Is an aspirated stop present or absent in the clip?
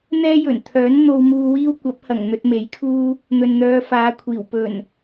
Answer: present